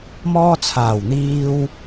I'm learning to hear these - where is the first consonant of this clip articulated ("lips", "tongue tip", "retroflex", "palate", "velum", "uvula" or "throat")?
lips